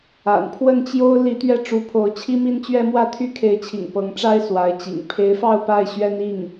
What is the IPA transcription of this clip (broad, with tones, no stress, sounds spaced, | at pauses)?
a̰˨˩ n pʰ w ə˥˩ n t͡ɕ j o˥ ʊ̯ l i˧˥ t̪ ɥ ɛ˥˩ ʈ͡ʂ u˧˥ pʰ o˧˥ ʊ̯ t͡ɕʰ i˥ m i˥ n t͡ɕ ɥ ɛ˥ m w ä˥˩ t̪ʰ y˥ kʰ e˧˥ ɪ̯ t͡ɕʰ ḭ˨˩ ŋ p ɤ˧˥ ŋ ʈ͡ʂ a˥ ɪ̯ s w a˧˥ ɪ̯ t͡ɕ ḭ˨˩ ŋ pʰ e˧˥ ɪ̯ f ɑ˥˧ ʊ̯ p a˥˩ ɪ̯ ɕ ɥ ɛ˥ n i˥˩ ŋ